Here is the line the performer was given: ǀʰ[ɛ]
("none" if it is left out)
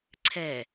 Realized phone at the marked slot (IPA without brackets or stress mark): ɛ